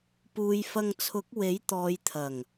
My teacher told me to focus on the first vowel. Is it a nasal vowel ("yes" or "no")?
no